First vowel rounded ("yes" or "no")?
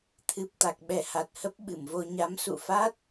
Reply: no